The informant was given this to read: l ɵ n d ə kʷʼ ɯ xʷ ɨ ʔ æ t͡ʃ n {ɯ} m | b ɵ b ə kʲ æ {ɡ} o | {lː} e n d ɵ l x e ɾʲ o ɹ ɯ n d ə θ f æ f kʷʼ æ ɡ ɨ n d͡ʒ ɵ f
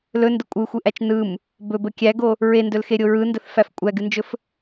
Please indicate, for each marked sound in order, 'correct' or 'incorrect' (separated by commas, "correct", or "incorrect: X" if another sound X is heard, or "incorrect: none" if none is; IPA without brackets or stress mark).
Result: correct, correct, incorrect: ɹ